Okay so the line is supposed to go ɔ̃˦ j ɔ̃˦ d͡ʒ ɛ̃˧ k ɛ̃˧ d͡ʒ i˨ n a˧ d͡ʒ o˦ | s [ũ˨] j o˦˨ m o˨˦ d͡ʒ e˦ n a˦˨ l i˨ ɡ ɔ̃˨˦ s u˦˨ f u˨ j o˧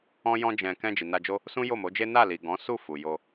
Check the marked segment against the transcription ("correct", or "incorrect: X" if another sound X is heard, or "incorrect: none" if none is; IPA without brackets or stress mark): incorrect: ũ˦